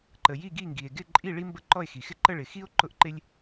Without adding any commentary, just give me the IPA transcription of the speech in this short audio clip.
ǃ ə˨ j i˥˧ ɡ i˥˧ ŋ ɡ i˨ e̯ ɡ ɪ˥˧ ǃʼ i˥˧ ɭ i˥ m b ə˥˧ ǃ ɔ˥˧ e̯ x i˨ x ɪ˥ ǃ ə˥˧ ɭ ɪ˨ x i˥ o̯ ǃ ʊ˥ ʔ ǃ ɪ˥ lʲ

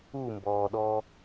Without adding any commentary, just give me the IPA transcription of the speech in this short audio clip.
u m b ɔː ɗ ɔ

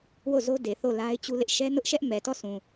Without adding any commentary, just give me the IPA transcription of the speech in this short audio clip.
w o˦˨ z o˦ d e˨ θ o˦˨ l a˦ ɪ̯ t͡ɕ u˦ l ɪ˦ ʔ ʃ ɛ˦ n ʊ˦ ʔ ʃ ɛ˦ ʔ m ɛ˨ t ɔ˦˨ s ũ˨

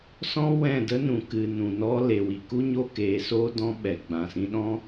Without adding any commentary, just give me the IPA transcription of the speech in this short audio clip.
s ɔ̃˦ w ɛ̃˦˨ d ə˦ n ũ˨ k ɨ˨ n ũ˨ n ɔ˦ l e˨ w i˨ k u˦ ɲ o˦ k eː˨˦ s oː˦ d ɔ̃˦ ɓ ɛ˨ ɡ͡b ã˨ s ĩ˧ ɗ ɔ̃˦

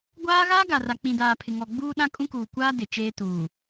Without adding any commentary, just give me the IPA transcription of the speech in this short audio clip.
ɡʷ aː˦ ɣ aː˦ ɡ a˨ r a˨ k͡p ĩ˨ d aː˨ pʰ ɪ˨ ŋ ɔ˨ ɡ͡b uː˦ ɗ ã˦ kʼ ũ˦ k uː˨ kʷ aː˦ d ɪ˨ t͡ʃ eː˦ t uː˨

